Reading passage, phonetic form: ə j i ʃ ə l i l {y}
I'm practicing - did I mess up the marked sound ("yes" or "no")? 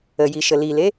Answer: yes